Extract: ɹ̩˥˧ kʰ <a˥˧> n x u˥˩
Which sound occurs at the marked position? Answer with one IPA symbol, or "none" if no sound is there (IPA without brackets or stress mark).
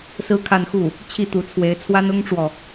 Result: a˥˧